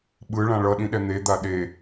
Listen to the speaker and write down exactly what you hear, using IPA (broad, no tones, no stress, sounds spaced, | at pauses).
ɓ ɯ ɭ ã ɭ ʌ ɗ ĩ ɗ ɛ n̪ e d̪ a ɗ e